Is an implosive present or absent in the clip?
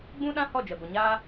present